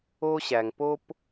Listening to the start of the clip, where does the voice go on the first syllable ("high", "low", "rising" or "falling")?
high